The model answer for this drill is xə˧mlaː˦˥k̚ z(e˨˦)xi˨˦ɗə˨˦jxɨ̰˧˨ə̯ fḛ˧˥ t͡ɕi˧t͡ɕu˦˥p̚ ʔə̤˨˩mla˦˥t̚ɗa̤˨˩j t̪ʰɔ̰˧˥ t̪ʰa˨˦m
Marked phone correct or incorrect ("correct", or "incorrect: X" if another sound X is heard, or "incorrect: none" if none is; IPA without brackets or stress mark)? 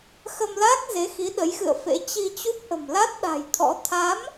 correct